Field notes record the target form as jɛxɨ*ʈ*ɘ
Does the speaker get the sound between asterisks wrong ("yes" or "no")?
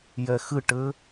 no